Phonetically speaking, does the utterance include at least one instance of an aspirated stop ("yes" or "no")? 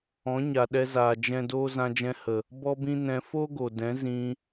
no